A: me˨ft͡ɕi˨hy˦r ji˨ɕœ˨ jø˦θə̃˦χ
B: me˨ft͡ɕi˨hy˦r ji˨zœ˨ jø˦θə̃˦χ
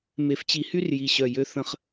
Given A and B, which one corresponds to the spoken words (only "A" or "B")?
A